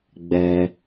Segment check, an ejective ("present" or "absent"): absent